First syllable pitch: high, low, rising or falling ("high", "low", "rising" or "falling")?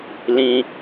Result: high